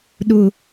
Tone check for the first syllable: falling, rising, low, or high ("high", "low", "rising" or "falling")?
low